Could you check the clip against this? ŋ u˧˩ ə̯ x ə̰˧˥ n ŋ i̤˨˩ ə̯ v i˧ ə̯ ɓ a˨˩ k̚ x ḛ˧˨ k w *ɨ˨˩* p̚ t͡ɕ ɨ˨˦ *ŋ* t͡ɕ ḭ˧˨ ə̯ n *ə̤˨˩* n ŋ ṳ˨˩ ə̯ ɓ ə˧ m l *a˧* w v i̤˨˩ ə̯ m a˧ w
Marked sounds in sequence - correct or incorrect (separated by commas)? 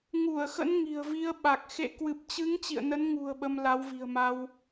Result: correct, correct, incorrect, incorrect